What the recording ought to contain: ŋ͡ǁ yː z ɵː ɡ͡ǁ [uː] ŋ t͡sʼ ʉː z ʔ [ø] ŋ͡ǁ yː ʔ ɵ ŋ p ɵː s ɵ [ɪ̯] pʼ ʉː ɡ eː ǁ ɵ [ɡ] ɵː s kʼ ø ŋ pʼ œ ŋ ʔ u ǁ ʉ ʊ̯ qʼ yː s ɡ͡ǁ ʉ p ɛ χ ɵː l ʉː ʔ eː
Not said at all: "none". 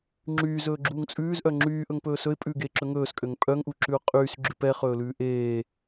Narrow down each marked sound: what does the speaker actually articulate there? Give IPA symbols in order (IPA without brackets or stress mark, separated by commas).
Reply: uː, œ, ɪ̯, ŋ